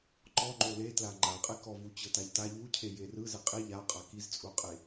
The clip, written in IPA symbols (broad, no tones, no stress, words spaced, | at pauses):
ǃɔŋ͡ǃo letla ŋ͡ǃaqʼekɔvu t͡ɕɤtaʎta ʎucʰe jerɯ zɛqʼi ʎa qʼakizt͡sʼuqʼe